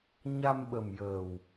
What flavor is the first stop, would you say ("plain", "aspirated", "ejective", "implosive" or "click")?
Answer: implosive